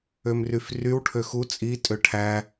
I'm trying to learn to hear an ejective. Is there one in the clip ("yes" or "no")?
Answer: yes